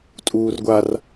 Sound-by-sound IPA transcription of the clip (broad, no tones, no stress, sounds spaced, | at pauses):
tʼ uː r ɡʷ a r